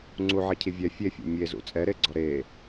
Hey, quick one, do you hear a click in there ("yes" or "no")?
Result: yes